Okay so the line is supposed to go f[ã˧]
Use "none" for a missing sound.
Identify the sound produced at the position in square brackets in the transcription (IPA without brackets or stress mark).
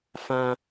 ã˧